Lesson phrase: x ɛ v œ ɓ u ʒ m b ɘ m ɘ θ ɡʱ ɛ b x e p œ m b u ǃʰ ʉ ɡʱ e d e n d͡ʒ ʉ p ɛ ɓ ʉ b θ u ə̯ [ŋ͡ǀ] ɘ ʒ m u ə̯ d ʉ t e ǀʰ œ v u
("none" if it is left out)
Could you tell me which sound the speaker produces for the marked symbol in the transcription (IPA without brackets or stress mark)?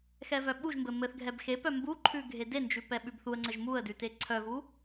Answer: ŋ͡ǀ